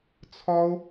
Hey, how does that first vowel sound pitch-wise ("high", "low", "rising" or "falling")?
high